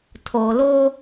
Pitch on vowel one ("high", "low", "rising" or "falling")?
low